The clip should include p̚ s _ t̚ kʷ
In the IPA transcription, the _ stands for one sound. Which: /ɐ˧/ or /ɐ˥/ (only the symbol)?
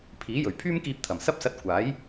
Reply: ɐ˧